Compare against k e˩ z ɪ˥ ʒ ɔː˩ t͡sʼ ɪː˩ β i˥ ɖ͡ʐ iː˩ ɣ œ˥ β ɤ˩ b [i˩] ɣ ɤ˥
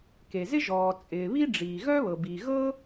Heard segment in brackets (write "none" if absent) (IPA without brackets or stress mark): i˩